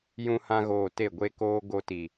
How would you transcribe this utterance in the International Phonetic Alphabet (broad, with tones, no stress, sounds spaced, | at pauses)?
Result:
j ũ˧ h ã˧ ɣ oː˨ t e˦˨ ɡʷ e˦ k oː˦ ɡ o˧ t i˨